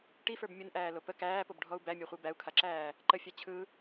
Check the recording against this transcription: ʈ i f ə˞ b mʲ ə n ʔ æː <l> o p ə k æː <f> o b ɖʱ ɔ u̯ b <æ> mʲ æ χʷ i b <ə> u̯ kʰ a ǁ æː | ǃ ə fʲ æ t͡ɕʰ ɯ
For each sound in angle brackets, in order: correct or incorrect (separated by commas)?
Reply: correct, incorrect, correct, incorrect